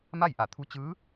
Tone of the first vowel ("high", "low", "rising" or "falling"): falling